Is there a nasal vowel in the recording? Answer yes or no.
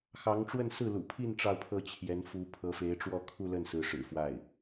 no